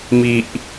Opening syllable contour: low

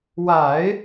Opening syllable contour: low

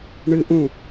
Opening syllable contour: high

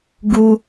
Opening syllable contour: high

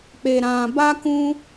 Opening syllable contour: low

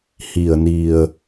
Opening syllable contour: low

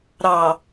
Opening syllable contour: low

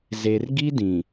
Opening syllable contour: low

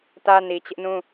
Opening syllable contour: high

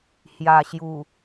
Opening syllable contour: low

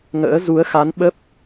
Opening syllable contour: rising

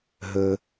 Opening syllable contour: low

